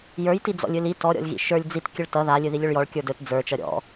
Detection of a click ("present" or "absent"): absent